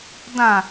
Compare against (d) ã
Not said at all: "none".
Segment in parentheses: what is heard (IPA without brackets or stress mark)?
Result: d